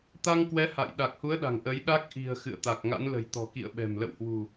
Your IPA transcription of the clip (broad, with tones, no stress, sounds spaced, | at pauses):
t̪ a˧ ŋ k w ɛ˨˦ h a̰˧˨ j ɗ a˨˩ k̚ h u˨˦ ə̯ ɗ a̤˨˩ ŋ ʔ ə˨˦ j ɗ a˦˥ k̚ ʔ i̤˨˩ ə̯ x ɨ̰˧˨ ə̯ t̪ a˨˩ k̚ ŋ a̰˧˥ n l ə̤˨˩ j t̪ ɔ̤˨˩ k ḭ˧˨ ə̯ ɓ ɛ̤˨˩ m l ə̰˧˨ w h w ṳ˨˩